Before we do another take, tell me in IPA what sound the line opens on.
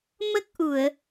m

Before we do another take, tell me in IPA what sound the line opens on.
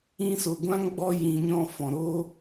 ĩ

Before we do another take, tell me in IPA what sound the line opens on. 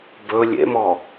b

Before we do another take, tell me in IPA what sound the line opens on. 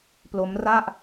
p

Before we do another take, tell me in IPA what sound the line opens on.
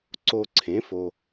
ǀ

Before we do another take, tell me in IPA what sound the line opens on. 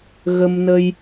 ɣ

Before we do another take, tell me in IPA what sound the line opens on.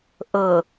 ʔ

